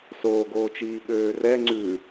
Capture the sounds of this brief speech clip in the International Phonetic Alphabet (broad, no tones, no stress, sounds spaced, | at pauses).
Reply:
s oː ɡ oː t͡ʃ iː ɓ øː r ɛ ŋ͡ǀ ʉ